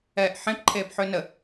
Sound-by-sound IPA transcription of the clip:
ɛː ʔ ħ ẽ p ǃʰ eː p ħ ø n ə

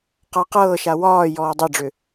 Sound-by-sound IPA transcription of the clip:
q a q ɤː ʃ a w ɒː j ɔː dˤ ɛ ɖ͡ʐ ʏ

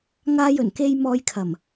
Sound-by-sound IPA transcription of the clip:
ŋ aː˧ j ɵ˨˩ n k e˧ j m ɔː˧ j kʰ ɐ˨˩ m

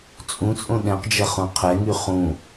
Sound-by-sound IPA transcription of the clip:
t͡sʼ ũ t͡sʼ õ ɗ ɛ̃ q d͡ʒ ɐ χ ũ qʰ ɛ ŋ y χ ũ

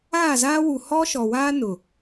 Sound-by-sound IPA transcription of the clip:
aː˦˨ z aː˦ w u˨ h ɔ˦ ʃ ɔ˨ w aː˦ n ʊ˨

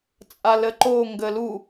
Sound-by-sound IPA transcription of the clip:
t͡sʼ a l ə ǃ o ŋ ɡ ə l u

